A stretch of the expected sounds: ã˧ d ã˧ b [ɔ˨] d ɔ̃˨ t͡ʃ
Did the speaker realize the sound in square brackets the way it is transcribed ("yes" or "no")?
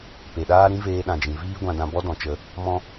no